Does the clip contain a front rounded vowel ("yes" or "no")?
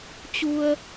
no